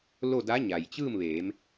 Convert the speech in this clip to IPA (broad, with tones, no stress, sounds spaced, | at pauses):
l o˥˨ d a˧˥ ɲ a˩ j t͡ɕ ɯː˥˨ m ʋ eː˩˧ m